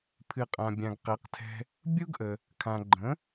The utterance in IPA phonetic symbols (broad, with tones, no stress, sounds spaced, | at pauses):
pʰ ɨ˩ qʼ ã˩ bʲ ã˩ ɡ q ɛ˩˥ q tʰ ɛ̤˧ | bʲ u˥ ɡ ʔ ə˩ | kʰ ã˩ ɡ͡ǃ ə̃˩˥